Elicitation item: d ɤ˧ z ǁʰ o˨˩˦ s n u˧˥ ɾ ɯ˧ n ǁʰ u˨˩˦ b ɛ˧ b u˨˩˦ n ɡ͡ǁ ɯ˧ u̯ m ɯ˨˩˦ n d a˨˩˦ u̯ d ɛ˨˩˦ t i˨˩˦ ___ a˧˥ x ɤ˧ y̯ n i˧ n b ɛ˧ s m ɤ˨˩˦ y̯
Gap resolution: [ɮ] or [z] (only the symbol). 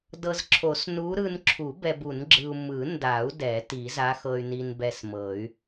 z